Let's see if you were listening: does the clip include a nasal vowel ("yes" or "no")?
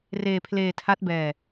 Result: no